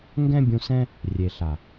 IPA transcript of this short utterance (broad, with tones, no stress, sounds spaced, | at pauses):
ŋ ɡ ɛ̃˦ bʲ ũ˧ s ɛ̃˦ | rʲ e˨ ɬ a˨